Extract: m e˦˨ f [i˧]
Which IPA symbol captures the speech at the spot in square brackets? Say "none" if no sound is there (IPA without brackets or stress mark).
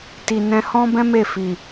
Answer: i˨